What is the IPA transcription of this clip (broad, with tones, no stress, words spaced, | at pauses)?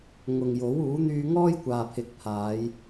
ŋʊ˨ŋ jo˨˥w uː˨˥n̪yː˧ ŋɔː˥jkʷaː˨pʰɪ˨˥k̚pʰaː˨˧j